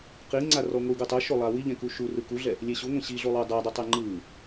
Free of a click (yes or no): no